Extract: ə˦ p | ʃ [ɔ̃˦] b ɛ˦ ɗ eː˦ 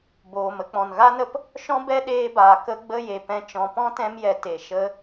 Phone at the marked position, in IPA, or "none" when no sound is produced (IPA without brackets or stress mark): ɔ̃˦